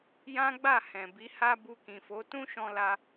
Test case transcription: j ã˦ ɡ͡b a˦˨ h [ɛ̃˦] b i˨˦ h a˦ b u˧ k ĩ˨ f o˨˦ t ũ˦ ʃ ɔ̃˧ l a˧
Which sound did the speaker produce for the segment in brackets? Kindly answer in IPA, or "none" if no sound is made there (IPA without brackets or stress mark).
ɛ̃˨